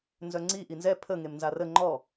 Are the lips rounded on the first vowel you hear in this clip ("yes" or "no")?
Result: yes